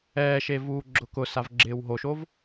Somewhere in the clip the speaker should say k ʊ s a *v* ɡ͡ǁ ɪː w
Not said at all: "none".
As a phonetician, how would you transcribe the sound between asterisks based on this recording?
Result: v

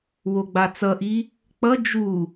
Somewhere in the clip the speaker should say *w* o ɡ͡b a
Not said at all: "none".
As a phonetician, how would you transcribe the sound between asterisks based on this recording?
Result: w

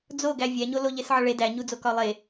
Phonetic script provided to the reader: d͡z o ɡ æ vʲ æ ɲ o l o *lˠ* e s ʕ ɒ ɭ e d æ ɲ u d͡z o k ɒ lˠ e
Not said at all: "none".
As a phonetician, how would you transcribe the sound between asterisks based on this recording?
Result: ʎ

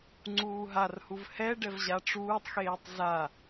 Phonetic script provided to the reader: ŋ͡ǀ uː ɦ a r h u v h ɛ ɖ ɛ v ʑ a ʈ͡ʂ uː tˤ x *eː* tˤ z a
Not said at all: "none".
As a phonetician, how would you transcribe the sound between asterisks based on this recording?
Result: eː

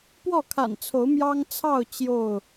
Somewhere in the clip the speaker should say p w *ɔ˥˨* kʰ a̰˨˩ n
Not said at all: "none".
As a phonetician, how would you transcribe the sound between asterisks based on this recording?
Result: ɔ˥˨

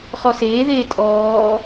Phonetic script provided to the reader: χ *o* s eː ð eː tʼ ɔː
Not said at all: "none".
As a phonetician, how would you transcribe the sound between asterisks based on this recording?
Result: ɔ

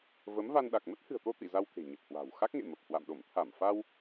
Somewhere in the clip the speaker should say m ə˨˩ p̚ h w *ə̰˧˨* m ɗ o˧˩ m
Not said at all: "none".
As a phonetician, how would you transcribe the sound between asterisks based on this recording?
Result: a̰˧˨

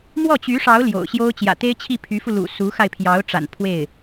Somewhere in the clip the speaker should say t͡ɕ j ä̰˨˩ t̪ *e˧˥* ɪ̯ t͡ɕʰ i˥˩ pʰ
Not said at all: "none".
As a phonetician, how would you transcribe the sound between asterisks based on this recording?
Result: e˥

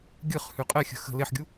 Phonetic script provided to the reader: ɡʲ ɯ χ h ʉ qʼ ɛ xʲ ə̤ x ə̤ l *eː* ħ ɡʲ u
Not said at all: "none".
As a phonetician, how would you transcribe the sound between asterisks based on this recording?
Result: e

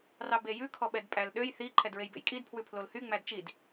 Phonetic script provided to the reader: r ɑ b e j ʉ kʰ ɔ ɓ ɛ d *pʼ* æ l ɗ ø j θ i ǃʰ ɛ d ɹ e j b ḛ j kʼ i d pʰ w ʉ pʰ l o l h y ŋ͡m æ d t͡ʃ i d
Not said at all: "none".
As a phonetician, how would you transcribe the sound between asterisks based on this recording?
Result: pʼ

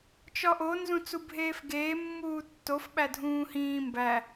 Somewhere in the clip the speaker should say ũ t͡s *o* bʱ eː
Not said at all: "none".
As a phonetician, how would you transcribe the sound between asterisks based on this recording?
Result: u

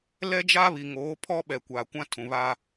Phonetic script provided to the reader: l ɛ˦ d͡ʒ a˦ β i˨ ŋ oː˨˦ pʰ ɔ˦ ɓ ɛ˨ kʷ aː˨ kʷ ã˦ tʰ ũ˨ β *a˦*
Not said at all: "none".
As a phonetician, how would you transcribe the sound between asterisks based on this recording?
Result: a˦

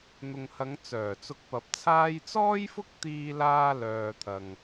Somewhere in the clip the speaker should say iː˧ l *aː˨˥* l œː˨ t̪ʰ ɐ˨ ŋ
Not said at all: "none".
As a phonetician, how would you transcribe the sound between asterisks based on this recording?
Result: aː˧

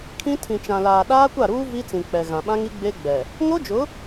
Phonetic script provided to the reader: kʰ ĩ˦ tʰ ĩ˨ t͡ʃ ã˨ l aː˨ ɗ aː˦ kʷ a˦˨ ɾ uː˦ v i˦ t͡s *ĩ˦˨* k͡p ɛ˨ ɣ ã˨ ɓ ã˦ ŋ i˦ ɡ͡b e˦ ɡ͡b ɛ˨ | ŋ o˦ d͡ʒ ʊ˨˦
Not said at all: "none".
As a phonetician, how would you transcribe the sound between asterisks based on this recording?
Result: ĩ˨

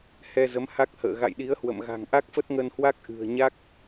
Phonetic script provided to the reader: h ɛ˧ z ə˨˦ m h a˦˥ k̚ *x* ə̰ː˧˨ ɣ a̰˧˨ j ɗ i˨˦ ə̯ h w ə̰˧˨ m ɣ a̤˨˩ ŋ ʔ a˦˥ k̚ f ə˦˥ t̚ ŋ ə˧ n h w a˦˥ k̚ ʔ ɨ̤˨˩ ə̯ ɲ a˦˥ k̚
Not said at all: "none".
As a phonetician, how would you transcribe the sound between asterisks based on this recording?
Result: h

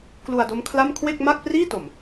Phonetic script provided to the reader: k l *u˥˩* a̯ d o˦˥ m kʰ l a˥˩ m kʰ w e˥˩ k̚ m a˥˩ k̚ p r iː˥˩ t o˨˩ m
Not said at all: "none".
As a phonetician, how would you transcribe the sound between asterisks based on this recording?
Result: u˧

